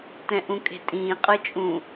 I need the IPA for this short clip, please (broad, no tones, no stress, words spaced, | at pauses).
tɛ̃ʔũkʼe̤tʼĩː qʼɯt͡ʃʼũ